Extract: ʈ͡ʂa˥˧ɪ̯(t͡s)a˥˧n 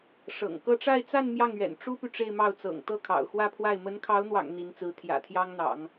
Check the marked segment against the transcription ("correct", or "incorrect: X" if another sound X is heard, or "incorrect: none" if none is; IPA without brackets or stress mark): correct